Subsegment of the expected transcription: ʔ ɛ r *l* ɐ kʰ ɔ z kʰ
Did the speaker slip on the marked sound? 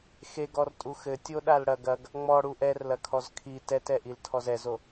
no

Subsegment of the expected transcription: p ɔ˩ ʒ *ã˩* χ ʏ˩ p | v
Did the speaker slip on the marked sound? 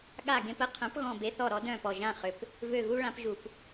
yes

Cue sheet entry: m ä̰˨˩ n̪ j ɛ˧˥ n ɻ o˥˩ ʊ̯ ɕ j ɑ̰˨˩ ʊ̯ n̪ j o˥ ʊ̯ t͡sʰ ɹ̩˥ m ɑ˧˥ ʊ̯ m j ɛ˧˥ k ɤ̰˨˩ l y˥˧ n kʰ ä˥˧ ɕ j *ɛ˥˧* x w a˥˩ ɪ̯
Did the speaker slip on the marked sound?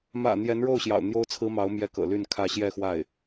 no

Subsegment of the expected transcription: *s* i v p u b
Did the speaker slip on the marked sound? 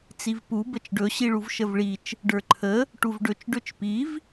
yes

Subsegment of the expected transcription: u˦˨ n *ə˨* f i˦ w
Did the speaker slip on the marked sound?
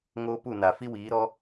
yes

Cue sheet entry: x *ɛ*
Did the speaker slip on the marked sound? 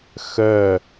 yes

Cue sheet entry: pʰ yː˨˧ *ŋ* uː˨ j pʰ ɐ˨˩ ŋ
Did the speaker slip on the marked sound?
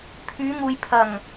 no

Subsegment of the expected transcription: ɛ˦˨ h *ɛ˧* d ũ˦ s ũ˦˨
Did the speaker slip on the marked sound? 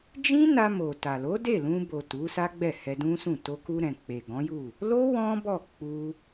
no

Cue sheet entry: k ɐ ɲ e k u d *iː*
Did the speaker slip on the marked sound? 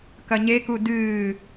yes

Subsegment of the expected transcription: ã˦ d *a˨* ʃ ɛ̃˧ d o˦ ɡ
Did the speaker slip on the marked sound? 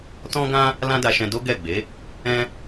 yes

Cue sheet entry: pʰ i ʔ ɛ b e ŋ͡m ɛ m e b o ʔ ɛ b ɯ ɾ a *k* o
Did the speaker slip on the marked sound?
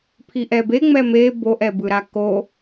no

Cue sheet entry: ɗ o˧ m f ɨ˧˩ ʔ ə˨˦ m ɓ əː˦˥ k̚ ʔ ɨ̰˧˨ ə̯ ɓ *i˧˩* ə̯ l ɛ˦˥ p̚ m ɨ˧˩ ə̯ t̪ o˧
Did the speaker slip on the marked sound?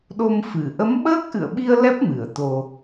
yes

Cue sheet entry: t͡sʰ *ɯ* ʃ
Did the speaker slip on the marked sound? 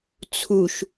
yes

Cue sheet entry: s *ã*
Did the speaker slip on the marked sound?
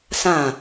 no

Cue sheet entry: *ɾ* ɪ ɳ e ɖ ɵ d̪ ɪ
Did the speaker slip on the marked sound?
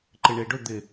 yes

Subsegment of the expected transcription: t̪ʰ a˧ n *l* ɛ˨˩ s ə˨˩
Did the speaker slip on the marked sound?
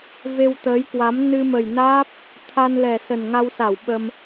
no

